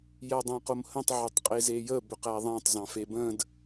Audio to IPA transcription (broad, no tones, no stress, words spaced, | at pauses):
jædˤæ̃qomhə̃tˤ ʕʏtˤqʼezejə bʏqæðˤæ̃tˤ zɑ̃febə̃d